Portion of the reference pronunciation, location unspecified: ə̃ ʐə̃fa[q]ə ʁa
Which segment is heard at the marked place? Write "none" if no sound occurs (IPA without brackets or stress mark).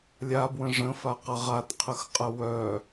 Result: q